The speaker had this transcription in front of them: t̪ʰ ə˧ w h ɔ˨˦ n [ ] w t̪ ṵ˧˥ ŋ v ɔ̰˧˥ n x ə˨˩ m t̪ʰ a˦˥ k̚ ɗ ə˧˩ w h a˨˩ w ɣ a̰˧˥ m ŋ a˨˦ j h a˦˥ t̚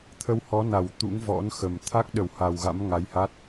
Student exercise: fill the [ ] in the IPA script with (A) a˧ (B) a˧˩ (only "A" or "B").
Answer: B